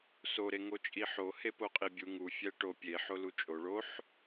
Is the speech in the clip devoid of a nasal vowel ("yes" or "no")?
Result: yes